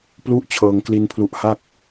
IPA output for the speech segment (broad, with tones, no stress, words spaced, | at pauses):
plu˦˥ʔt͡ɕʰɤː˧ŋ kli˧n pʰlu˦˥ʔha˥˩k̚